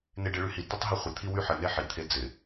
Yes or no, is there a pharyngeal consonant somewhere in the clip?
yes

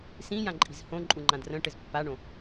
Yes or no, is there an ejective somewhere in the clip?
yes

